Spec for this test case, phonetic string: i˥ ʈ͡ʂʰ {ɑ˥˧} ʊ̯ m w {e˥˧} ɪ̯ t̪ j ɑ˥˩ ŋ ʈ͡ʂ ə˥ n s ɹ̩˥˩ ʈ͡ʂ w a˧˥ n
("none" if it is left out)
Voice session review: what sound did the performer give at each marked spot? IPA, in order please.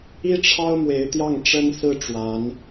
ɑ˥, e˧˥

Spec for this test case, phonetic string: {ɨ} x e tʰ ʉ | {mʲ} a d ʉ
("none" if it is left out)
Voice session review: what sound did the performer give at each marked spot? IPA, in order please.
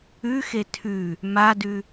ʉ, m

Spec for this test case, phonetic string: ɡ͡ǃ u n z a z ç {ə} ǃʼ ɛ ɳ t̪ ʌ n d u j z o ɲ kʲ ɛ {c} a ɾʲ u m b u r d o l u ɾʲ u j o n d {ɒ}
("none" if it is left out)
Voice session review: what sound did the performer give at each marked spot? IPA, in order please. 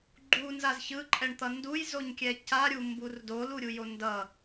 ɯ, c, ʌ

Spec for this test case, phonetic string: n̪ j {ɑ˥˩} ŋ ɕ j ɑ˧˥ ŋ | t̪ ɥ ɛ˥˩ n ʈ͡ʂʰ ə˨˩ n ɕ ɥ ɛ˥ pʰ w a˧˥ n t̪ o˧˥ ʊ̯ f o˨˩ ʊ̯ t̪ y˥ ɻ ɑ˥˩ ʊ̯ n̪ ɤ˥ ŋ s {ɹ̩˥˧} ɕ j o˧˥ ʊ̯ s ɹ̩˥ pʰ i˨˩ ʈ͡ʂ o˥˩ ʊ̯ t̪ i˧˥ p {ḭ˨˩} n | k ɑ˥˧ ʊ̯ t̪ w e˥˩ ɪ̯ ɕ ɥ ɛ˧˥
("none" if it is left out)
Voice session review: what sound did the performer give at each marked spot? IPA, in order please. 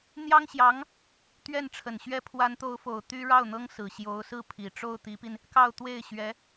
ɑ˥, ɹ̩˨˩, i˧

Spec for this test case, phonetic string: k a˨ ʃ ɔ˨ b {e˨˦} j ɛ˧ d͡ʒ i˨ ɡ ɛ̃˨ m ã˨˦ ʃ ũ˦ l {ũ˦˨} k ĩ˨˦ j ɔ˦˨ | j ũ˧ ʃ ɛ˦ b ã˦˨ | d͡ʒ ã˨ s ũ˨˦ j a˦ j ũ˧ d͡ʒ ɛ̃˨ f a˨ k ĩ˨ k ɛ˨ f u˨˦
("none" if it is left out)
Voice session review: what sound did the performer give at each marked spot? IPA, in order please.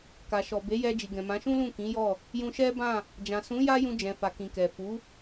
e˨˦, ũ˦˨

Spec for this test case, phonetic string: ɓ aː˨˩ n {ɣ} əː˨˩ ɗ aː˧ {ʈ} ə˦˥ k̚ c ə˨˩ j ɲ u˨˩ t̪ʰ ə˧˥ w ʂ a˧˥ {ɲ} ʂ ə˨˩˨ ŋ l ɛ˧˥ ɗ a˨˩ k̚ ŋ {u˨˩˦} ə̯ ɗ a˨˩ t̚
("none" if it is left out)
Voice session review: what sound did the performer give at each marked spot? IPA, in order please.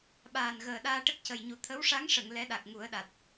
ɣ, ʈ, ŋ, u˨˩˦

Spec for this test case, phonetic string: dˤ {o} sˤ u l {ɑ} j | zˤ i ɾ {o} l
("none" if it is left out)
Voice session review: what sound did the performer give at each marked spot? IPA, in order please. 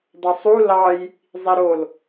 o, ɑ, o

